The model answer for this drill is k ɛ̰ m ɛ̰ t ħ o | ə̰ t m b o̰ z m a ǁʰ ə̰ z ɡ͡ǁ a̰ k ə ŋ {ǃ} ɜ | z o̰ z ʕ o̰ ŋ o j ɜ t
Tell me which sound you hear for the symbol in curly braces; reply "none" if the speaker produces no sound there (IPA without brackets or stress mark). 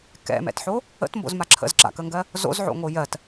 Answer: ɡ